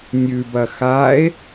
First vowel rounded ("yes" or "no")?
yes